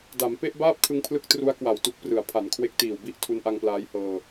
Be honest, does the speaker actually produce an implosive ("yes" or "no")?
no